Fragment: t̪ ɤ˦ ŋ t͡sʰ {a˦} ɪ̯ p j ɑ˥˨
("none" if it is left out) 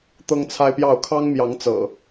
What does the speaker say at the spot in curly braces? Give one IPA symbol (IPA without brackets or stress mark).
a˦